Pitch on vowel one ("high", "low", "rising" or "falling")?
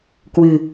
low